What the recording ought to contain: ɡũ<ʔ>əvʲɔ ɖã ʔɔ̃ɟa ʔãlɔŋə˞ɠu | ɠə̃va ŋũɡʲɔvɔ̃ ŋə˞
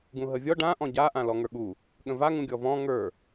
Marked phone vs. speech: incorrect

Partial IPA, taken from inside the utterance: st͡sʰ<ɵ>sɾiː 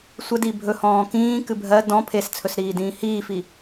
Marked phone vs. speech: correct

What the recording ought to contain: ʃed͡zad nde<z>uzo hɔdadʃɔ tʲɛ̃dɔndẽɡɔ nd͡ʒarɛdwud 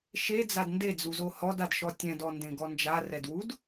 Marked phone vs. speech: incorrect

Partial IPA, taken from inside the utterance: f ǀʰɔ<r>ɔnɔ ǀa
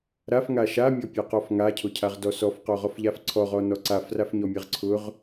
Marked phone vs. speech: incorrect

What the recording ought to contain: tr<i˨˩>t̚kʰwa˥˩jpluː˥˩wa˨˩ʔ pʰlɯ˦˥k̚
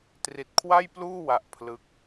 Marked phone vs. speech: correct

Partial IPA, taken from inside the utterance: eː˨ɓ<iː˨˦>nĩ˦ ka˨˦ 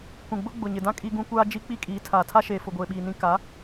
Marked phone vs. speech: incorrect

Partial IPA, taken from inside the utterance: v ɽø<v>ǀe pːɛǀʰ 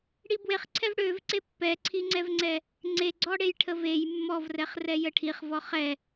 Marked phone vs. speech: correct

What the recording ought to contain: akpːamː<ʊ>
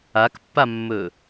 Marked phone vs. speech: incorrect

